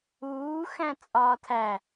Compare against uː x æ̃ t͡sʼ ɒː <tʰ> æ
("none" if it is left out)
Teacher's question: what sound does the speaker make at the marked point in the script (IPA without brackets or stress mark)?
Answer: tʰ